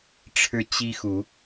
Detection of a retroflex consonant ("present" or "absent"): present